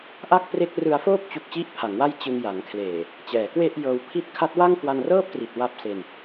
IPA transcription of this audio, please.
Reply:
ʔ a˥˩ k̚ p r e˦˥ k̚ r ɯ˧ a̯ f oː˥˩ p̚ t͡ɕ u˦˥ k̚ t͡ɕ i˥˩ ʔ pʰ a˩˦ ŋ w a˥˩ j t͡ɕ ɯ˧ ŋ j a˩˦ ŋ kʰ l eː˨˩ | t͡ɕ ɛː˩˦ k w e˥˩ ʔ j ɤː˧ w pʰ i˦˥ t̚ kʰ a˦˥ t̚ w a˥˩ ŋ k w a˧ n r ɤː˥˩ p̚ t r i˨˩ t̚ w a˦˥ p̚ s e˧ n

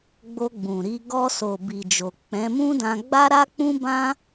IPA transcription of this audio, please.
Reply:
ɡ͡b o˧ ɡ͡b ũ˨ ɾ i˧ ɡ ɔ˧ s o˨ b i˨ d͡ʒ o˨ k͡p ɛ̃˨˦ m ũ˦ d ã˧ ɡ͡b a˦ ɾ a˦ k͡p ũ˦ b ã˦

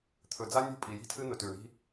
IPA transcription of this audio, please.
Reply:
t̪ʰ ɵ˨ d͡z a˦ nʲ ṳ˦˨ pʼ i˨ j i̤˦ tʰ ɨ˦ n̪ ɵ˨ t ʉ˨ ɳ i̤˦

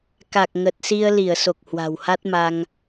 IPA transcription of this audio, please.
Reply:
k a˨˩ k̚ ŋ ə˨˩ t̚ s i˧ ə̯ l i˧˩ ə̯ s o˨˩ k̚ h w a̤˨˩ w h a˦˥ t̚ m a˧ ŋ

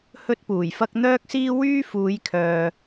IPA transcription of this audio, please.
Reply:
h ɵ˥ t̚ p uː˨˩ j f ɐ˥ k̚ n̪ œː˥ k̚ s iː˥ w yː˥ f uː˨˧ j kʰ œː˨

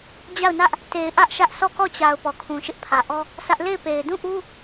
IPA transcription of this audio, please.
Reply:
d͡ʑ a˦˨ ʊ̯ n ä˦ ʔ | t e˨ ɪ̯ ʔ ä˦ ʔ ʃ ä˦ ʔ s ɔ˦˨ k ɔ˦˨ t͡ɕ a˨ ʊ̯ p ɔ˨ kʰ ũ˨ ʃ ɪ˦ ʔ pʰ ä˨ ʔ ɔ˦ | s ä˦ ʔ l e˦˨ ɪ̯ p e˨ ɪ̯ d ũ˦˨ ʔ u˦

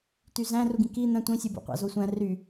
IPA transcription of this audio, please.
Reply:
t y z æ̃ r u ɡ ĩ k i n̪ æ̃ tʷ ĩ sʲ ɯ b o̰ qʷ ɑ̰ z o sʷ æ̃ r y

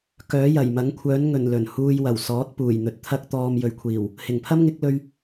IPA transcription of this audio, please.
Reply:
k œː˨˥ j ɐ˨˩ j m ɐ˨˥ ŋ kʷʰ œː˨˥ n ŋ ɵ˨˩ n l ɵ˨˩ n h uː˧ j w ɐ˨˩ w s ɔː˨˥ t̚ p uː˨˩ j n̪ ɵ˨ t̚ t̪ʰ ɐ˥ k̚ t̪ ɔː˧ m j ɵ˨ ɥ kʷʰ iː˨˩ w | h ɪ˨˩ ŋ pʰ ɐ˥ m ŋ ɪ˨˥ k̚ l ɵ˧ ɥ

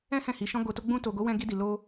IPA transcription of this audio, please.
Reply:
ɛ̃˦ h ɛ̃˦˨ h i˨˦ ʃ ɔ̃˦ ɡ o˧ t o˦ ɡ͡b ũ˧ t o˨ ɡ o˨˦ w ɛ̃˧ ɡ i˧ d i˨ l o˧

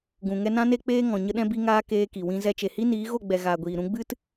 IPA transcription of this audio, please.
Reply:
ɡ ũ˨ ŋ ɛ˧ n ã˦ n e˦ k͡p eː˦ ŋ ɔ̃˨ ɲ ə˦ ɗ ɛ̃˦ b i˧ ŋ aː˧ k eː˧ k i˨ w ĩ˧ z ɛ˧ t͡ʃ e˨ h i˦ n iː˨˦ ɣ o˦˨ ɡ͡b ɛ˨ ɣ aː˨ ɡʷ iː˨ ɾ ũ˧ ɡ͡b ɨ˦ t

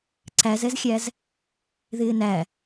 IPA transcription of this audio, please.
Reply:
ǀ æ z ɛ z xʲ æ z | ð ɪː n æ

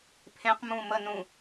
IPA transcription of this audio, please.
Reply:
pʰ ẽ q m ũ m ə n ũ

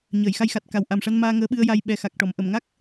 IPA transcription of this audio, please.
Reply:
ɲ əː˨˩˨ j x a˧ j x a˨˩ t̚ k a˨˩ w ʔ a˨˩ m ʂ a˧ n m aː˧ ŋ əː˧˥ ɓ ɨ˧ ə̯ j a˧ j ɓ ɛ˨˩ x a˨˩ k̚ ʈ ɔ˨˩˨ m ʔ ə˨˩˨ m ŋ a˦˥ k̚

